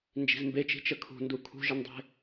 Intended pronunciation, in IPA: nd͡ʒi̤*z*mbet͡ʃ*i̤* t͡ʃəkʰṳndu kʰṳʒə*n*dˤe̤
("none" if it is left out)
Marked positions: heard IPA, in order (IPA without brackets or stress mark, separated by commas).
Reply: z, i̤, n